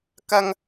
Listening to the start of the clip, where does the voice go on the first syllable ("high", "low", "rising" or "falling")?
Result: high